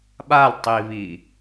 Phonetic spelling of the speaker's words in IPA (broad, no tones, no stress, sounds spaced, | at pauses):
ɓ a l tˤ i β i